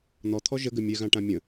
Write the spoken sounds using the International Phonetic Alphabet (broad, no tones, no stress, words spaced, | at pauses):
n̪ɔt̪ʰɔ ʒəɡɘ mʲɛɣãʈã mʲə̃